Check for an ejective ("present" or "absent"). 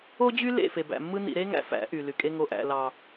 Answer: present